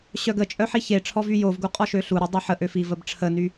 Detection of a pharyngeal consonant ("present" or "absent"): present